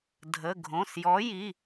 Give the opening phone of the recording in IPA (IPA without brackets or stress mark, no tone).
dʱ